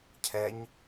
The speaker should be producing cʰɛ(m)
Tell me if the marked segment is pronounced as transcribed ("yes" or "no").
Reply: no